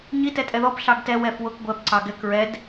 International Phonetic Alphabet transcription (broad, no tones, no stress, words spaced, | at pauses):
ɲitɛtʼɛ ðɔp ɬɑɡtɛ wɛfwʊk ɡʷɛp ǀɑɡɛk ɹɛd